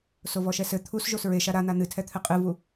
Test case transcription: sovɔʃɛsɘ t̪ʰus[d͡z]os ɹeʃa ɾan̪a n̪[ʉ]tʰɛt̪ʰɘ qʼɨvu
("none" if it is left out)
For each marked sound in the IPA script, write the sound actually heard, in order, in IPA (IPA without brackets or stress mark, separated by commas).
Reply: ʒ, ɨ